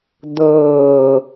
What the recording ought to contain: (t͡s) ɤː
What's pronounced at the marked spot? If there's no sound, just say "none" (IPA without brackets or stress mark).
d̪